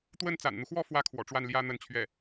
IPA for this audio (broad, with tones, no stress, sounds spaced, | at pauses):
t̪ w ə˥˩ n t͡s a̰˨˩ n n̪ u˦ x w ɔ˥ f w ä˥ kʰ w ɔ̰˨˩ ʈ͡ʂ w a˥˩ n l j ä˥ n̪ ə˥˧ n t͡ɕʰ ɥ ɛ˥˩